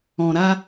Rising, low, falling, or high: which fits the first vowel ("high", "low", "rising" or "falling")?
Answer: low